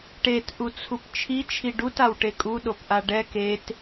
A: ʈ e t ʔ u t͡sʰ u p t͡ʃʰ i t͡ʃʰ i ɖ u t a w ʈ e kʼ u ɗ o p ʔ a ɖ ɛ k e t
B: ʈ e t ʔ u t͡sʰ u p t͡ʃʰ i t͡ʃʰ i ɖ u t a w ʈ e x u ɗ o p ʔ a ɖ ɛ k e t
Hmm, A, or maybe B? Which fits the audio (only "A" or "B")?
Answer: A